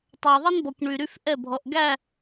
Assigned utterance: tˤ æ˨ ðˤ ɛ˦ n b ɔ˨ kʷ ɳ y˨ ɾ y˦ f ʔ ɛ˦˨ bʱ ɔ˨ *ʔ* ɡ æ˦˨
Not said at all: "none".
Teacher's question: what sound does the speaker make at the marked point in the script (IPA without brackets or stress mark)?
ʔ